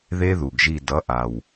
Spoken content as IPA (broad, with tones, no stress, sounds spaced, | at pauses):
ð e˦˥ ð u˨˩ ɡ ʒ i˦˨ d ʌ˨˥ ʔ a˨˩ w